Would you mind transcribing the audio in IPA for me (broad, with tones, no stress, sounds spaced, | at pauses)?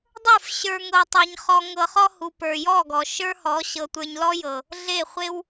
dˤ ə˞˦˨ f ɕ ə˞˦ ŋ ɤ˧ tˤ e˧ ɲ χ ɔ˧ ŋ ɤ˧ χ ɔ˦ h u˨ p ə˞˨ j ɔ˦˨ ɡ ɔ˨ ʃ ə˞˦ h ɔ˨˦ ɕ ɤ˨ tʷ ə˞˧ ɲ l ɔ˦ j ɤ˨ | ɮ e˦˨ χʷ e˦ w